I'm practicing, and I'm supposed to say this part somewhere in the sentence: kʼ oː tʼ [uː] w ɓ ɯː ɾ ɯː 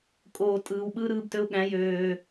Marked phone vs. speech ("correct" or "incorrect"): incorrect